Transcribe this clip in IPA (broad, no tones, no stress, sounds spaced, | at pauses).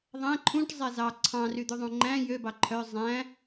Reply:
ðˤ æ̃ ǃʰ ũ ʈ zˤ ɛ z ɑ ǀʰ ɑ̃ r y d̪ ʉ ðˤ ũ ŋ͡ǃ æ̃ j ø b ɑ ǃʰ œ zˤ æ̃